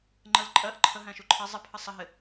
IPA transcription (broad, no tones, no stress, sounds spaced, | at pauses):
ŋ͡ǃ ə l ǃʼ ɜ ʔ ǃʰ ə ɦ æ̃ ʃ u ǃʰ ʌ zˤ ə pʰ ə sˤ ə ɦ ɪ